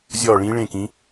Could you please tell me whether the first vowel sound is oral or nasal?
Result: oral